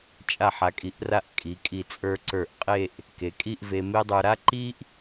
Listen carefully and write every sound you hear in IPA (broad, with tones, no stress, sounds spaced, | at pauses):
t͡ʃʼ a˧˩ ħ a˩˧ kʼ i˩˧ ʔ r a˧ ʔ kʼ i˩˧ kʼ i˧˩ t͡sʼ ə˞˧ ǀ ə˞˧˩ ʔ qʼ e˥˧ ʔ | k e˩˧ kʼ i˥˧ ʔ v e˧ m e˥ dˤ ə˞˧ ɾ a˥ ǃ i˥ ʔ